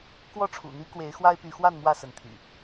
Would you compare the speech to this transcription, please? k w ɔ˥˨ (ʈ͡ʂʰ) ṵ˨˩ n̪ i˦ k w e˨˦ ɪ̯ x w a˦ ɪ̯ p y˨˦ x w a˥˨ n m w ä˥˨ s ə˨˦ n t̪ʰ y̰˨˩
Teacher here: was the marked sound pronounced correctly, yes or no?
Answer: yes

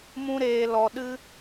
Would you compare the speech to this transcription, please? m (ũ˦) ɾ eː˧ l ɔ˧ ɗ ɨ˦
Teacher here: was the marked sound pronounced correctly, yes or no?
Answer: yes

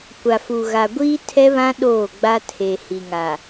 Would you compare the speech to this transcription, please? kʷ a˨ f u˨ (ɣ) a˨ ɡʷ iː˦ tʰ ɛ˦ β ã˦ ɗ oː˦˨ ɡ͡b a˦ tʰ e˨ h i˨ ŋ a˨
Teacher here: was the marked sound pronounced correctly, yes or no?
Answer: yes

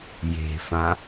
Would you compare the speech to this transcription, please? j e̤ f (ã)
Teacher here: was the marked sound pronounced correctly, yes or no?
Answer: yes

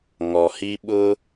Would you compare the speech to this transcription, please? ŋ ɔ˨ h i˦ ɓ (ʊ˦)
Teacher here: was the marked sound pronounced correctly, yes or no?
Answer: yes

